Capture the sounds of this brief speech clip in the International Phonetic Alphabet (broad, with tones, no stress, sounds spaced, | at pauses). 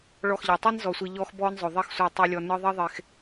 ɭ ɔ˦˨ x ʎ ɑ˨ tˤ i˦ n z ɔ˨ sʷ i˨ ʎ ɔ˦ x b ɔː˦ n zˤ ɵ˨ ðˤ e˦ x sʷ ɑ˦˨ tˤ ɯ˦ lʲ ɔ˦ n ɯ˦ ðˤ i˦ ðˤ e˨ x